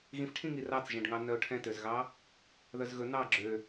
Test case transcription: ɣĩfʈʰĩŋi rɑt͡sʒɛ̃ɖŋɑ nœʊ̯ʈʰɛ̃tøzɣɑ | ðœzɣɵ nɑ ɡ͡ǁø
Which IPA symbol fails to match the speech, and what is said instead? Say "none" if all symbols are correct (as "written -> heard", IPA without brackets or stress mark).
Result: none